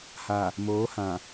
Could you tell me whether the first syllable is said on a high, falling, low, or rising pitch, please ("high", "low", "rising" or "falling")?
low